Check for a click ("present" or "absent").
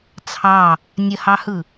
absent